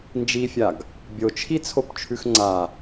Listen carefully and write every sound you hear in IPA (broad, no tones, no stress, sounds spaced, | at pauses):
n d͡ʒ i fʲ a ɡ | bʲ o t͡ʃʰ i t͡sʰ o p t͡ʃʰ ʉ x ŋ͡ǀ a